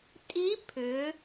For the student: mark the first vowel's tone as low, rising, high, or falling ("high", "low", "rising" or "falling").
rising